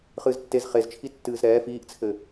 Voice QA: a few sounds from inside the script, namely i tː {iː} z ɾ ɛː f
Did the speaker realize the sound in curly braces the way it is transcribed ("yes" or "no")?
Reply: no